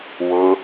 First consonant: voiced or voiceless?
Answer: voiced